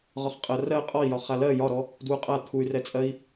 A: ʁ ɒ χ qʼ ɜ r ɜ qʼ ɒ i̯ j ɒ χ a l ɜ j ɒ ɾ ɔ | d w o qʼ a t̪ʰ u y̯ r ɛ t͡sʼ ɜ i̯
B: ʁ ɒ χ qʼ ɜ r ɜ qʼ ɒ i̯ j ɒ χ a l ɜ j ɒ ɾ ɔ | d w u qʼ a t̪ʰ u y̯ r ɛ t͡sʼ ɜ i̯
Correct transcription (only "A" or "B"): B